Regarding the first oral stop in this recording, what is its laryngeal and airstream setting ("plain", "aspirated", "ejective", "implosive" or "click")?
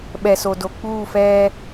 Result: implosive